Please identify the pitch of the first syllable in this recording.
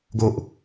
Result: low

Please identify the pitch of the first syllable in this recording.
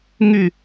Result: falling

